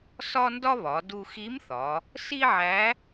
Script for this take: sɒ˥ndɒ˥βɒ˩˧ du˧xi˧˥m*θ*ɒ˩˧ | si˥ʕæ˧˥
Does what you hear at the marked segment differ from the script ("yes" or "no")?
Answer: no